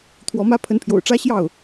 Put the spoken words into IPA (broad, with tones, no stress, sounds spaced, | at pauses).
t̪ʰ w ɔ˧˥ m ä˥ pʰ ə˧˥ n pʰ j o̰˨˩ ʊ̯ ʈ͡ʂ ä˥ ɕ j ɑ˥˩ ʊ̯